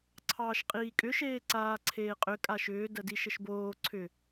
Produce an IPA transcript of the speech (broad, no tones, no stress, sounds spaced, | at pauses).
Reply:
ǀʰ ɑː ʃ qʼ iː kʼ ʏ ʃ eː ǀ aː ǀʰ eː qʼ ʏ kʼ a ʃ ʏː d ɜ d i ʃ ə ʃ b oː ǀʰ ʏ